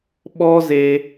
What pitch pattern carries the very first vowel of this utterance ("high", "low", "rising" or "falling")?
high